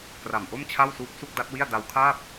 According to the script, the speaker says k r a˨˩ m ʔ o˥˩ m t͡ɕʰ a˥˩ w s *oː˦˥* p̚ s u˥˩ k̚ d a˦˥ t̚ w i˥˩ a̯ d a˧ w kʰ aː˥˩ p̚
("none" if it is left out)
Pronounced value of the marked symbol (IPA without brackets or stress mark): uː˦˥